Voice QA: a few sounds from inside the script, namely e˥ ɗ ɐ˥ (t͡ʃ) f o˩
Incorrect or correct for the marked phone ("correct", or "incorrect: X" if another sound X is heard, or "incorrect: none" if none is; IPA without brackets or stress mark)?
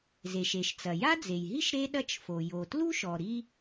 correct